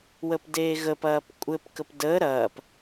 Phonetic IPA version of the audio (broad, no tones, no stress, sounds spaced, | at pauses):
w ə p d eː ɣ ə p ɐː p kʷʼ ɘ p k ə p d əː ɾ ɐː p